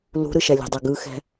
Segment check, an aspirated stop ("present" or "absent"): absent